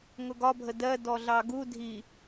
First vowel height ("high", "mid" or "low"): high